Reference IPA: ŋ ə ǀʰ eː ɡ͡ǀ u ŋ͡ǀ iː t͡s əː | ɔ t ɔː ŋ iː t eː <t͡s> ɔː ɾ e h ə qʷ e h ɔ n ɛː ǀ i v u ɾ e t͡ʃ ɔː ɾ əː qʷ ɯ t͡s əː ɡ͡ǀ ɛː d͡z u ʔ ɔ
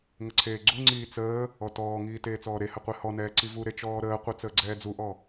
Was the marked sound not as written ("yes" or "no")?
no